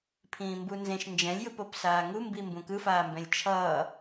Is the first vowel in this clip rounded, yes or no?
no